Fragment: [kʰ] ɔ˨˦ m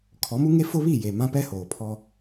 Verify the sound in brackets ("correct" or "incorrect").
correct